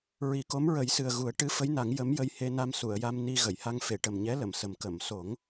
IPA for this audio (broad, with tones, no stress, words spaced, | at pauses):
ɹi˨˩˦ko˧˥m ɹə˨˩˦jsɨ˨˩ə̯ ɣu˨˩˦ə̯ʈɨ˧˥fə˧˥jna˨˩˦ŋ jə˧˥mjə˧jhe˧na˧m su˨˩˨ə̯ja˧m ni˧ ɣə˨˩˨jha˧ŋ fe˨˩˨ʈə˨˩mɲɛ˧˥ lə˨˩˨msə˨˩m kə˨˩˨mso˨˩˦ŋ